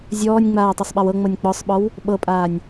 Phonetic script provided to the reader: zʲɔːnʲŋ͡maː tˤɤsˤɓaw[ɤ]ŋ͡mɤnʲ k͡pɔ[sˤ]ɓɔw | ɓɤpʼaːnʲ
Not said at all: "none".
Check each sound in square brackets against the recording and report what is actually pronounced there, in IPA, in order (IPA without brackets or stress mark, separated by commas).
ɤ, sˤ